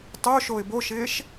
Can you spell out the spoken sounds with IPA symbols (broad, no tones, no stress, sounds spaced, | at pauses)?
tˤ o ʃ o ɪ̯ b o ʃ ɪː ʃ